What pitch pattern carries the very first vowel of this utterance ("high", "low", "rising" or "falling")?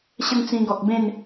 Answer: high